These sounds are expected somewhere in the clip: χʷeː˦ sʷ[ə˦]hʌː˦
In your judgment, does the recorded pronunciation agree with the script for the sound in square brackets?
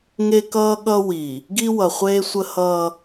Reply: yes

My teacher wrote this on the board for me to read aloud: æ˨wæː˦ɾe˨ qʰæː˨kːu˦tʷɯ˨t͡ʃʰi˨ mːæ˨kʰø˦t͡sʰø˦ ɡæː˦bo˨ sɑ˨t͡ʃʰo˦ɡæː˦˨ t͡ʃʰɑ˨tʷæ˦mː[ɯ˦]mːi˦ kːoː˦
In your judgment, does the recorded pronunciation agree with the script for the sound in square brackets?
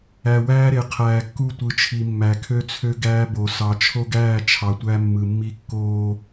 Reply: no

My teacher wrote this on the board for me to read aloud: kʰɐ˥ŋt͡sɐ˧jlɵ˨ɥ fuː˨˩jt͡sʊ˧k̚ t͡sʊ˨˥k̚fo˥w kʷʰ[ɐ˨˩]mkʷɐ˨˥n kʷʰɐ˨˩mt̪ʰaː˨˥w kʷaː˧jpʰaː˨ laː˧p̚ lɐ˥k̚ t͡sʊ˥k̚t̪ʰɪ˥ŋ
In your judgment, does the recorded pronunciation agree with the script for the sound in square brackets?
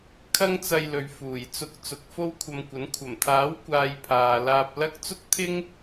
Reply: no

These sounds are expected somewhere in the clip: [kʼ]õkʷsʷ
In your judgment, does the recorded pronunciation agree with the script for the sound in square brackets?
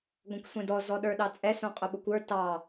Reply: no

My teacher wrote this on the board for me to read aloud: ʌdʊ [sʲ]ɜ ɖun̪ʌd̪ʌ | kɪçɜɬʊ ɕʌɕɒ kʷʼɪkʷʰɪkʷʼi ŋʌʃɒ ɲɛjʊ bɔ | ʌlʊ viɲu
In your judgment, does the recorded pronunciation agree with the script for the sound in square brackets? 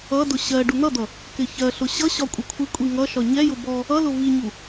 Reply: no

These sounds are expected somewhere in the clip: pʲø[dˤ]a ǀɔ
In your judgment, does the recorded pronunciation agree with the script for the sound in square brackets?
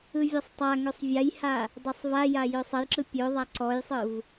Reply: no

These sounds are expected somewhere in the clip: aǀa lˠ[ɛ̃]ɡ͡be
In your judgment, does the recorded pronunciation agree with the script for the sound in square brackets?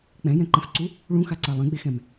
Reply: yes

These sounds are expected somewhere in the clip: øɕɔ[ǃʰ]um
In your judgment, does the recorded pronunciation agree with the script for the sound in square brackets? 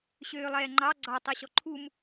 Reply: yes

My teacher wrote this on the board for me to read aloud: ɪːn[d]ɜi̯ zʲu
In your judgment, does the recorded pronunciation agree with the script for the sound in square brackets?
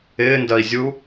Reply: yes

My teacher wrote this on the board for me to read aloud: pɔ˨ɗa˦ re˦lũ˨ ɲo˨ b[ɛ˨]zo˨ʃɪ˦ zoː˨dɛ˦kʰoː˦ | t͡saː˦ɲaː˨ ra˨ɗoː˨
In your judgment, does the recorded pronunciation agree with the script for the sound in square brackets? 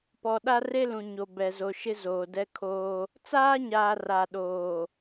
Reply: yes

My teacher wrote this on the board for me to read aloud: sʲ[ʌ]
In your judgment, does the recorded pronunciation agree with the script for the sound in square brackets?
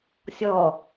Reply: no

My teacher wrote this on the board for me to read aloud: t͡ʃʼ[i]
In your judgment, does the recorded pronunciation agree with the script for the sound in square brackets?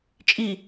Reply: yes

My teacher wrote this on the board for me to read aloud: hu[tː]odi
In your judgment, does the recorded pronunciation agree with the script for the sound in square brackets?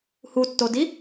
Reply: yes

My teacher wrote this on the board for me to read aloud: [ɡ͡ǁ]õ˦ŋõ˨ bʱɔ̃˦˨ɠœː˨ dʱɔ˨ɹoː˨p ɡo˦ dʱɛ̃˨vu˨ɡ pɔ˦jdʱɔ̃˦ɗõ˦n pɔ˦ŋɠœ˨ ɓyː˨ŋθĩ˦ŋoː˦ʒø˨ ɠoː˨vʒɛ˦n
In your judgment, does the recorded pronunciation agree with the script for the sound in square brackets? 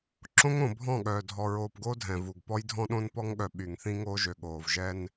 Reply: no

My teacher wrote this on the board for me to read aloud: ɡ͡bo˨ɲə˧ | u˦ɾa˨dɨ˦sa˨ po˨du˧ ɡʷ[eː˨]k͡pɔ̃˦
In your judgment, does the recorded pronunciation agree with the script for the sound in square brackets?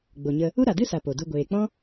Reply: yes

